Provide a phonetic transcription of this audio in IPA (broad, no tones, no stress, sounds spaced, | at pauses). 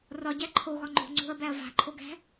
r ɒ ɟ æ ǃʰ o ɣ ɒ ŋ͡ǃ o̤ ŋ͡ǀ o̤ ɐ̯ b æ ɐ̯ v a̤ ǃʰ o ɡ æ̤